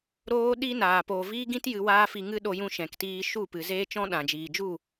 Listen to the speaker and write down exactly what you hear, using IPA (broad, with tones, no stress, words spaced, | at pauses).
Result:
ɾoː˦ɗiː˦naː˨ poː˨viː˦ɡĩ˦t jɨ˧waː˦fi˧ ŋɨ˦ɗo˧jũ˧ ʃɛ̃˨ktiː˧ ʃu˦˨pɨ˨zeː˦ t͡ʃɔ̃˦ ɗã˨d͡ʒiː˨d͡ʒu˦˨